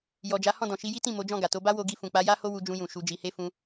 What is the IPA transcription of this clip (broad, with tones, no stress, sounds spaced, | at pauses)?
j ɔ˨ d͡ʒ a˨˦ h ɔ̃˦˨ d ɔ̃˨ ʃ i˧ j i˦ t ĩ˦˨ m o˨˦ d͡ʒ ɔ̃˦˨ ɡ a˨ t o˧ b a˦ w o˧ ɡ i˧ f ũ˨ k͡p a˨˦ j a˦ h o˦ w u˧ d͡ʒ ũ˧ j ũ˨ ʃ u˨˦ d͡ʒ i˧ h e˦ f ũ˧